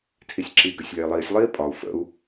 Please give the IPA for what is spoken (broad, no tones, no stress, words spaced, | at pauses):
tʰisʲǁi ɡøsʲlʲai̯lˠiːsʲ lˠiːpʼɒu̯ fə̰u̯